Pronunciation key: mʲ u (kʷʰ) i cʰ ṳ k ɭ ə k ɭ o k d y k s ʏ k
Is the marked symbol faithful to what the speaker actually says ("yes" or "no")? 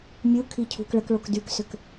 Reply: no